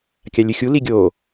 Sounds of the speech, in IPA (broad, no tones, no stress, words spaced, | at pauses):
kʲalʲɨxʲu liɡʲo